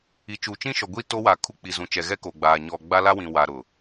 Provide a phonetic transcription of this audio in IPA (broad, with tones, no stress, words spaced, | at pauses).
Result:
i˨t͡ʃu˨t͡ʃĩ˦ʃɔ˨ ɡʷi˦ to˦wa˨ kʰu˦k͡pi˨zũ˨t͡ʃɛ˨ ɣɛ˦ko˨ɡ͡baː˨ ɲɔ˨ ɡ͡ba˦la˦wĩ˨ wa˨ɾʊ˨